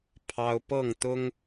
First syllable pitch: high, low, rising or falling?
high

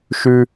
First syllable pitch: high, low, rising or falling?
high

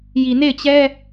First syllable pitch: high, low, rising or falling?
low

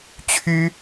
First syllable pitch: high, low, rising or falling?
high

